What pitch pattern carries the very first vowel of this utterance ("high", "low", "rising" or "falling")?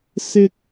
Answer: high